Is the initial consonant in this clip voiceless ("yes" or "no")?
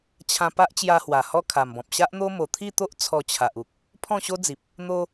yes